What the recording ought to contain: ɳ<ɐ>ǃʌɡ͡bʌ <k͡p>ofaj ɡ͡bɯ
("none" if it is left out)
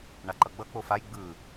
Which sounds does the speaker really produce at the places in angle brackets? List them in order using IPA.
a, k͡p

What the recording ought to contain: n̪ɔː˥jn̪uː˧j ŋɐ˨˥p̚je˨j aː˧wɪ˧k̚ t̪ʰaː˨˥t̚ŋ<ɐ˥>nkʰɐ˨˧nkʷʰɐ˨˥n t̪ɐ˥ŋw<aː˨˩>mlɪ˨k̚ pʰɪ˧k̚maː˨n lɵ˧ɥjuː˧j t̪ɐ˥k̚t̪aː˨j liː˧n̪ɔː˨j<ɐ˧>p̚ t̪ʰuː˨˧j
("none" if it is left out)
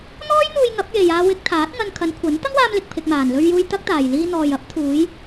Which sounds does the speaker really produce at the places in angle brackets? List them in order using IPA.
ɐ˧, aː˧, ɐ˨˥

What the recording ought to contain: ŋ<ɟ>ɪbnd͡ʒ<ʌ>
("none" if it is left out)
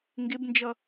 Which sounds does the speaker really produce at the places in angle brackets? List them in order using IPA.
ɡ, ʌ

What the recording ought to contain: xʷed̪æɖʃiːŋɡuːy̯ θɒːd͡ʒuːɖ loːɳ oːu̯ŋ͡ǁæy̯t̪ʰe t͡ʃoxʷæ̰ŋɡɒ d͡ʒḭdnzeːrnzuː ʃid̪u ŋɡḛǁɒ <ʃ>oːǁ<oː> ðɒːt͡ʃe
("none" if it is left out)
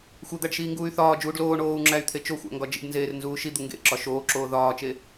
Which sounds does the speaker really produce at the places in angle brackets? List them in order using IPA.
ʃ, oː

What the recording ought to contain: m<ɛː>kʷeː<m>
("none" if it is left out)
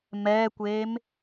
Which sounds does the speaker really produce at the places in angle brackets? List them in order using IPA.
ɛː, m

